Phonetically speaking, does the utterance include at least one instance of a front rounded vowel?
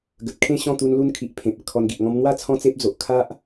no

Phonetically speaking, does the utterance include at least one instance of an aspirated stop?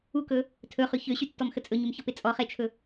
yes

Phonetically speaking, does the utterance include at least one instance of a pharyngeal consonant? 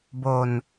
no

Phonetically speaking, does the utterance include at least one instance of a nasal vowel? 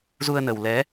no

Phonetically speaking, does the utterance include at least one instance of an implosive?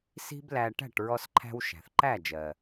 no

